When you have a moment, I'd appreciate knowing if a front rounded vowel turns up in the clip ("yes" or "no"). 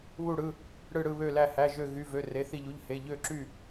yes